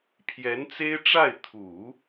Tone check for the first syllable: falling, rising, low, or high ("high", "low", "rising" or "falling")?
rising